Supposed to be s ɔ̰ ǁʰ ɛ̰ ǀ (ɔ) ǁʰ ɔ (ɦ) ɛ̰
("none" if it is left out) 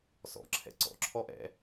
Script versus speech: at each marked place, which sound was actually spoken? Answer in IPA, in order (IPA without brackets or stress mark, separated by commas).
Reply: ɔ̰, ʔ